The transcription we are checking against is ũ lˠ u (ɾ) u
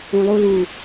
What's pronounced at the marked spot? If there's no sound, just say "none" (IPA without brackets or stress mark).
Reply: l